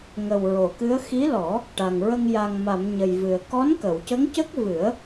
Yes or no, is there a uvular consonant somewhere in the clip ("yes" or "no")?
no